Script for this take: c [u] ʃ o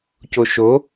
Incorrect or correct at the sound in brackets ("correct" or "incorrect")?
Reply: incorrect